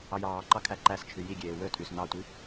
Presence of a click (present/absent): present